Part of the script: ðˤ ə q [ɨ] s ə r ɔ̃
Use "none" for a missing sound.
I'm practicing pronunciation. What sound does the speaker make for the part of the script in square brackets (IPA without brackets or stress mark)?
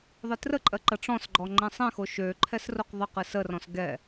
ɨ